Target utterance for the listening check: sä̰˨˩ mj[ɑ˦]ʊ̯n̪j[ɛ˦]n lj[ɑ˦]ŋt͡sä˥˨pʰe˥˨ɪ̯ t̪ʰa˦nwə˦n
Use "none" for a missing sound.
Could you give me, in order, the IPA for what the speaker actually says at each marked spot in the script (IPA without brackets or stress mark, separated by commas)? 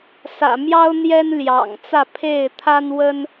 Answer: ɑ˦, ɛ˦, ɑ̰˨˩